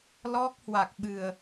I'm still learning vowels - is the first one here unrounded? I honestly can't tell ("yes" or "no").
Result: no